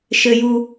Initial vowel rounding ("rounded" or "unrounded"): unrounded